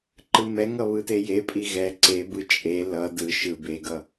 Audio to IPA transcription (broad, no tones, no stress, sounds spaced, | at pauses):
ǃ ɯ m ɛ ŋ ʌ β ɯ t e j e pʼ i ɣ ɛ ǀ e b ɯ t͡ʃʼ e l ʌ d ɯ ʃ ɯ b e ɡ ʌ